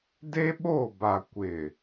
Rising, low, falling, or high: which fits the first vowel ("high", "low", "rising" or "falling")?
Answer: high